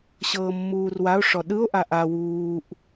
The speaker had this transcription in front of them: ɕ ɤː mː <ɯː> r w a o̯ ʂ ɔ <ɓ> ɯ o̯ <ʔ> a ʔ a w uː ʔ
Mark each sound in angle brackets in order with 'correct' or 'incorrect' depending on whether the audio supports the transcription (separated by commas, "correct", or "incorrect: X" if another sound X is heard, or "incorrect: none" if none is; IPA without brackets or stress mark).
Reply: incorrect: uː, incorrect: ɗ, correct